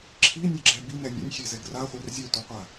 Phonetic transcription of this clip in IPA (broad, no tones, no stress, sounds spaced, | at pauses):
ǁʰ i nʲ e ɡ͡ǁ ɛ b i n ɛ nʲ ḛ nʲ xʲ e z ɛ ɡ r a χʷ ɛ r zʲ ɛ tʷ ɯ qʷ a